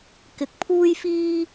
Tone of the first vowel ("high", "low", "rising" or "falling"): low